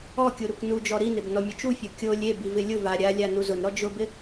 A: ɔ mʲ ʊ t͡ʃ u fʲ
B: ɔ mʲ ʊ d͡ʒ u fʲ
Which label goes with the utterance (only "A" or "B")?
A